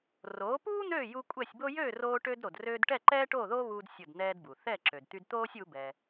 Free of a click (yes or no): no